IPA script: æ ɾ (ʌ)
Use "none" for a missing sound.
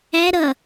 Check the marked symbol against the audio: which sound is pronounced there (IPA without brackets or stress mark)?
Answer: ʌ